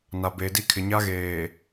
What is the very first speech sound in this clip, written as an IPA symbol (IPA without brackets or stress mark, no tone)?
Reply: n